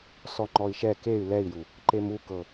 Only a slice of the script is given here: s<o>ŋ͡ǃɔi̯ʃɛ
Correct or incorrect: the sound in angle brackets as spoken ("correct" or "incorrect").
incorrect